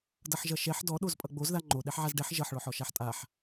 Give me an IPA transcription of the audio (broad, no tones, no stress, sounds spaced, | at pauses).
d ʌ ħ ʒ ʌ ʃ ɛ ħ d ɔ ɗ o z pʼ ʌ ɡ͡b o z ð a ŋ͡ǃ o ɗ ɛ ħ ʕ a z ɖ ɛ ħ ʒ ʌ ħ ɭ ɔ ħ ɔ ʃ a ħ tʼ a ħ